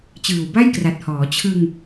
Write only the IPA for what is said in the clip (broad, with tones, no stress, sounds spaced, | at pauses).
t͡ɕ ɯː˨˩ w b a˥˩ j k r a˨˩ t̚ h ɔː˩˦ t͡ɕʰ ɯ˧ ŋ